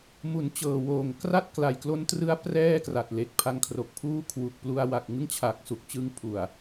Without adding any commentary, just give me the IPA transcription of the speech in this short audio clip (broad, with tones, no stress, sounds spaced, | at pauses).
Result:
m u˩˦ n t͡ɕ ɤː˨˩ w oː˨˩ ŋ k r a˥˩ t̚ k l a˨˩ j k l o˦˥ n t r ɯ˦˥ a̯ p r ɛː˥˩ k r a˨˩ t̚ l e˨˩ k̚ pʰ a˧ ŋ kʰ r o˨˩ k̚ pʰ uː˥˩ kʰ w u˨˩ k̚ p l u˧ a̯ w a˨˩ k̚ ŋ ɯ˥˩ ŋ t͡ɕʰ a˨˩ k̚ s u˨˩ k̚ t͡ɕ ɯ˧ ŋ pʰ u˨˩ a̯